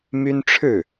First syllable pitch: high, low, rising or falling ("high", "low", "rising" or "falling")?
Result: high